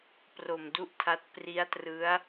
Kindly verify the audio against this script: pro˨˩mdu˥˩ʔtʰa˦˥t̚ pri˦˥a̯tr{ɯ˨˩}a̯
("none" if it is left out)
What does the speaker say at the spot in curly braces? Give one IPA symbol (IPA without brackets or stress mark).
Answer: ɯ˦˥